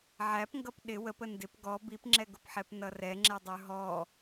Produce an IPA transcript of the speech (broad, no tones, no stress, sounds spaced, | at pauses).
ʕ æ p ŋ ɡ ʌ p ɗ ɪ w ə p ə n d ɪ p ɡ ɔ b i p ŋ͡ǁ ɛ ɡ ʊ p ħ ɛ p n ʌ r ɛ ŋ͡ǁ ɛ dˤ ə˞ ɦ ɔ